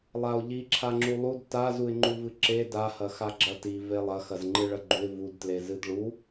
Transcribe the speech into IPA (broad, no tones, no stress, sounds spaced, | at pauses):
lˠ a ʊ̯ ʎ i ǁʰ a ŋ͡ǁ u lˠ u d t a z u ɪ̯ ŋ͡ǃ u v ɨ ǁ e d a h ɐ x a ɡ͡ǁ ɐ t i v e lˠ ɐ x ɐ z ŋ͡ǃ ɨ ɭ ɐ ɡ͡ǃ u ɪ̯ v u d t l e z ɨ d ɭ u